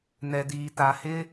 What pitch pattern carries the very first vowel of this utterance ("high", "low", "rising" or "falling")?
low